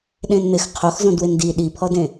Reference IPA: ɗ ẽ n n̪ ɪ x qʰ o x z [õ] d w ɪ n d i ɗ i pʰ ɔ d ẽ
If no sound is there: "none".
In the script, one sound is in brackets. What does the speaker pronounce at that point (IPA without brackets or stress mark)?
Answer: õ